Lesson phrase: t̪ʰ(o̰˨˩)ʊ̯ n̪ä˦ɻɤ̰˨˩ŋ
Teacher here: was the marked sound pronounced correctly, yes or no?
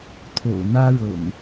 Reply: yes